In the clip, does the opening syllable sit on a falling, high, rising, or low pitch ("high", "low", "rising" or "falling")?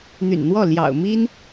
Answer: low